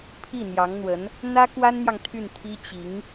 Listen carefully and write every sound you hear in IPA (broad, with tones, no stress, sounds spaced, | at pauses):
pʰ i˥˩ n̪ j ɑ˧˥ ŋ n̪ w ə˧˥ n | n̪ ä˥ k w a˥ n n̪ j ɑ˨ ŋ t̪ʰ y˥˩ n t̪ʰ i˥ t͡ɕ i˧˥ ŋ